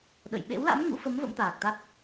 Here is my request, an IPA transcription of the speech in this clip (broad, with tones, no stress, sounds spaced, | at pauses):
ɗ ə̰˧˨ j ɓ ḛ˧˥ w l a̰˧˥ m ŋ ṵ˧˥ f ə˨˦ m v ə̰˧˥ m t̪ aː˨˩ k̚ t̪ a˦˥ t̚